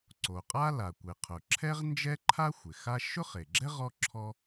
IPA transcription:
ǀ o˩ qʼ a˥ l a˩ kʷ ɪ˩ qʰ ʊ˩ ǁʰ ɛ˥ ʁ n d͡ʒ ɛ˥ ǃʰ a˥ xʷ ɪ˩ x a˥ ʃ ʊ˥ χ e˩ ɡ͡ǁ ɛ˥ ʁ ɔ˥ ǁʰ ɔ˥

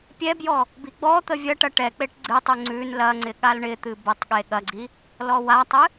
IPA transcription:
pʲ ɛ b j ɔ | b i ɡ͡b ɔ t̪ ə vʲ ɐ ʈ ɐ ʈ ɛ k͡p e ʈ ɡ͡ǀ ɨ tˤ ʉ ŋ͡ǀ ʉ n l ɐ ŋ͡ǀ ɪ ɠ a l ɳ ɪ t̪ ɨ b ə tˤ ɠ e ɠ ɐ ɡ͡ǀ i | l ɔ w a tˤ ɨ

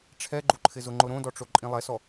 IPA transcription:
ʈ͡ʂʰ ɛ ɡ͡ǃ u ǃʰ ɪ z ʊ ŋ͡ǃ ʊ ɾ õ d ɔ ʈ͡ʂ o ǃʼ ĩ lˠ ɛ s ɔ

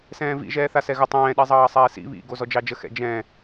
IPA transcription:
s ɛ̃ː v ḭ ʒ ɛː θ a s ɛ ɣ ə tˤ ɛ̃ː ɗ i zˤ ɑː sˤ ɛː s ḭ β ḭ ɡ o z ɔ d͡ʒ ɑ d͡ʒ ə x ɛ̰ d͡ʒ ɛ̃

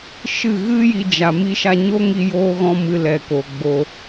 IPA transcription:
ʃ ɨ˦˨ ɣ ɨ˦ j i˧ d͡ʒ a˨ m i˧ ʃ a˧ ɲ o˦ ŋ i˧ j oː˧ ɣ ɔ̃˧ m ɨ˨ l ɛ˨ k o˨ ɡ͡b o˧

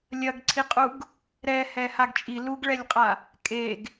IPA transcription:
lʲ ɐ ɡ ǀʰ i qʼ u ɡ | ɾ ɛ h ɛ h a ɡ t͡ʃʼ i l u ɡ ɭ ɛ lʲ qʼ a | kʼ e ɡ

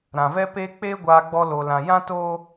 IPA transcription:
ɾ ã˨ v ɛ˦ p e˦ k͡p eː˦ ɡʷ aː˧ ɡ͡b ɔ˦ l oː˧ l ã˧ j ã˦ t oː˦

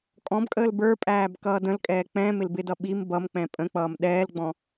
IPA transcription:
kʼ ɔ̃ b kʼ əː l b ə˞ pʼ æː b k ʌː d ə̃ l kʼ ɛː k͡p ɛ̃ m ɪ l b ɪ d ʌ ɓ i m b ʌ m k͡p ɛ̃ pʼ ə̃ k͡p ʌː m ɗ ɛː l ɡ͡b ɔ̃

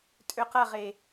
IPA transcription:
tʼ ø q ɐ ʁ e

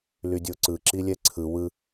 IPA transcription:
l y dʲ o ǀ ɯ ǁ i lʲ ɛ ǀʰ ɯ w ɯ

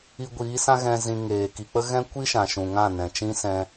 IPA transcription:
i˧ ɡʷ iː˨˦ s ã˦ ɣ ɛ̃˧ z ĩ˧ ŋ eː˨ k i˨ k͡p ə˦ ɣ ɛ̃˦ kʷ i˦ ʃ ã˨ ʃ ũ˨ ŋ ã˦˨ n ɛ̃˨ t͡ʃ ĩ˦ s ɛ̃˧

